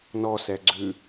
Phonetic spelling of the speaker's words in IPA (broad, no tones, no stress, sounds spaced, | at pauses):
n ɔ s ɛ ɡ͡ǀ ʉ